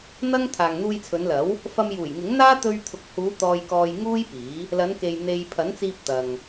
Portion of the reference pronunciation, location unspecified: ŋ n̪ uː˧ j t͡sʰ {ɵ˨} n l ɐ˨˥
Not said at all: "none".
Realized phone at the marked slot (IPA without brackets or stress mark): ɵ˨˧